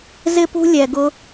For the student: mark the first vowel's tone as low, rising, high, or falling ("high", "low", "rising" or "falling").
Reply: high